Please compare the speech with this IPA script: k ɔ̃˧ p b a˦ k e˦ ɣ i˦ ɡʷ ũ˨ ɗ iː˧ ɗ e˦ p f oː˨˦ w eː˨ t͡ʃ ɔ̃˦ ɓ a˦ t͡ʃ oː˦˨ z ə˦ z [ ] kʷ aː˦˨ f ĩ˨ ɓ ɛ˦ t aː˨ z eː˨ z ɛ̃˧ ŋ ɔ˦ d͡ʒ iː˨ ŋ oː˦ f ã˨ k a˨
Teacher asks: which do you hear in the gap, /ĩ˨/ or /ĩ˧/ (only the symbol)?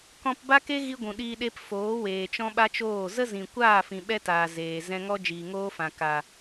ĩ˨